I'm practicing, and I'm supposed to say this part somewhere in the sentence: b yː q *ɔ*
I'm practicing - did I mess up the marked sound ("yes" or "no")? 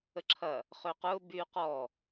no